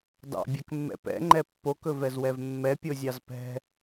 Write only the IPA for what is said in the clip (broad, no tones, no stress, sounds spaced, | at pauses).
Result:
d ɑ̰ bʲ ɛ k mː ɛ̰ p ɛ̰ ŋ͡ǃ ɛ pː o k ɵ v ɛ z w ɛ v mː ɛ pʲ o zʲ ɑ z p ɛ̤